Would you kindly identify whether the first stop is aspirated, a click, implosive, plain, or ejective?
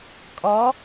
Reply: ejective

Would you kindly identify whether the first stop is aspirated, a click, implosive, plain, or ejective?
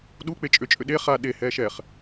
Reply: implosive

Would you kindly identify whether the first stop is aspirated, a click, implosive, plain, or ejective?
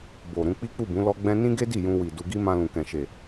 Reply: plain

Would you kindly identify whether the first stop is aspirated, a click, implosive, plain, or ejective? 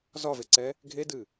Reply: click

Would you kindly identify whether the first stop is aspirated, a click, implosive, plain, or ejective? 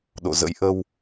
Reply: implosive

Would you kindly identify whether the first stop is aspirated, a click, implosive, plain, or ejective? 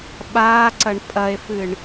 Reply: implosive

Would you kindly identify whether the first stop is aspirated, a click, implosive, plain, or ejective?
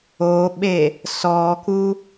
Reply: implosive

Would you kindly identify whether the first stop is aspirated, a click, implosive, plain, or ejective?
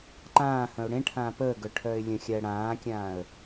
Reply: click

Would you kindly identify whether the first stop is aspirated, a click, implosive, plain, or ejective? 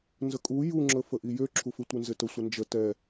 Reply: ejective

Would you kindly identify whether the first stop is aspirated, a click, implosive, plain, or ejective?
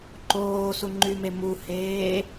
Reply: click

